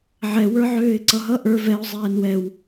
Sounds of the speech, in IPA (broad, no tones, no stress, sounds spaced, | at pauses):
ʕ ɛ w ə˞ ʕ øː ɪ̯ ǀ ʌ ɦ ʌ ʔ ə˞ v ɛ ʊ̯ zˤ ɛː n w ɛ w